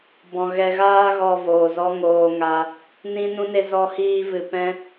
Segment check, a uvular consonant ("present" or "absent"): absent